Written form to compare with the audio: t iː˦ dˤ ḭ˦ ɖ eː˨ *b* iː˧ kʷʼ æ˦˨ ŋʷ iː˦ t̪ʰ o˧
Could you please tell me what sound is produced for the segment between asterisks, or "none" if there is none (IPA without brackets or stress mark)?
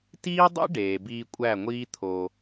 b